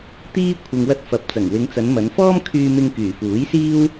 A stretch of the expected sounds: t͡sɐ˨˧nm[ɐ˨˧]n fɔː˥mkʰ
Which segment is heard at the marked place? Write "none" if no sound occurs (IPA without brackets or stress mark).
ɐ˨˧